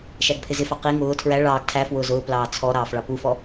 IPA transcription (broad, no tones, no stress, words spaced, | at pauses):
ʃæɡpʰɪzɪfɑ qi ŋʊː tʰɹæ ɭɑːɡ tʰæ fwʊːzʊːplɑː t͡sʰɔ ɾɑːfɭɑpufɔ